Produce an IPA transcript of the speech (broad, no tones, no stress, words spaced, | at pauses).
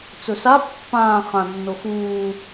t͡sɵsa pːãː χãnːo xuː